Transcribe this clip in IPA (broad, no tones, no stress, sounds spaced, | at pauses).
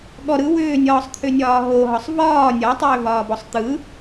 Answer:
ɠ ɔ ɾ ɯ w ʏː nʲ ɒː sˤ t̪ʰ ʏ nʲ ɒː ɦ o ɦ ɒ sˤ v ɒː nʲ ɒ tˤ ʏː v ɒː b ɔ sˤ t̪ ɯ